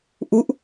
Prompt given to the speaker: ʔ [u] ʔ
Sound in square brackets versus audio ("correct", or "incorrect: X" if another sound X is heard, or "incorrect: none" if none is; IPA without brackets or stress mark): correct